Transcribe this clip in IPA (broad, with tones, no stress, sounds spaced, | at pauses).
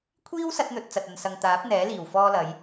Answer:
kʷʰ iː˥ w s ɐ˧ t̚ n̪ ɵ˨ t̚ t͡s ɐ˨ t̚ ɐ˨ n s ɐ˨ ŋ t̪ aː˨˥ p̚ n̪ ɛː˨˥ l iː˨˩ w f ɔː˧ l ɐ˨˧ j